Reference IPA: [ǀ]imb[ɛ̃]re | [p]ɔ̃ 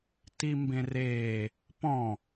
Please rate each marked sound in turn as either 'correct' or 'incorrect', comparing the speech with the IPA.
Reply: incorrect: t, incorrect: ẽ, correct

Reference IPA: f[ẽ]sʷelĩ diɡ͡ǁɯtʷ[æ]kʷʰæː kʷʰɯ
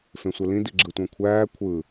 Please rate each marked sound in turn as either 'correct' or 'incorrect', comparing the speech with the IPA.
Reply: correct, incorrect: æ̃

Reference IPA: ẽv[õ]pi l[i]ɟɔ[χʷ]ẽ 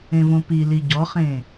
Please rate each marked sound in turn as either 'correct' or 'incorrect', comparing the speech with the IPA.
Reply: correct, correct, incorrect: χ

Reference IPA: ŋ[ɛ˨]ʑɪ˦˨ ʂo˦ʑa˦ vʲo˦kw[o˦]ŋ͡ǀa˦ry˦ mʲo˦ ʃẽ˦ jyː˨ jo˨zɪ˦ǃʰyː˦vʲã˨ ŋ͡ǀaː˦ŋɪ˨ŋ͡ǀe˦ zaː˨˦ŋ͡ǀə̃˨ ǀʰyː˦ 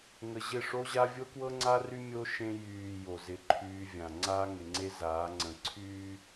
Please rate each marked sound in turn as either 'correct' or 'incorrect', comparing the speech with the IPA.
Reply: incorrect: ə˨, incorrect: ɤ˦

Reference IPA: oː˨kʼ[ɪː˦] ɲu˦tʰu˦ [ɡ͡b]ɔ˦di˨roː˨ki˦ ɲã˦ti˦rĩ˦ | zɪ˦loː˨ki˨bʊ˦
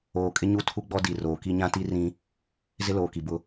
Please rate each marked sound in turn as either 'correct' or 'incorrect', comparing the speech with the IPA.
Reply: incorrect: ɪ˦, correct

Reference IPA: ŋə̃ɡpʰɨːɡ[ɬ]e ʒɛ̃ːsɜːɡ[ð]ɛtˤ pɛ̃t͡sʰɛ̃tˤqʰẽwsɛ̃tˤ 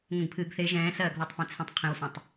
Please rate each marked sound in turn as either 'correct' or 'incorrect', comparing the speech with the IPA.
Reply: incorrect: θ, correct

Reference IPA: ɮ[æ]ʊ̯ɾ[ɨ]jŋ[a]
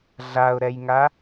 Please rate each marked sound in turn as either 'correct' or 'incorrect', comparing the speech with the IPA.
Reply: incorrect: a, incorrect: ɛ, correct

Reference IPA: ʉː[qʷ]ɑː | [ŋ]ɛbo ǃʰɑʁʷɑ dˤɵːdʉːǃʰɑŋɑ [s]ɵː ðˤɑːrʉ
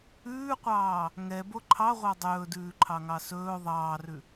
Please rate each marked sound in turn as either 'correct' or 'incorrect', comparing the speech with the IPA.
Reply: correct, correct, correct

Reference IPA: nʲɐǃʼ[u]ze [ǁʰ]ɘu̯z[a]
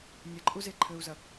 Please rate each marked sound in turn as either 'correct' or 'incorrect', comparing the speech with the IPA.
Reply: correct, incorrect: ǃʰ, incorrect: ɐ

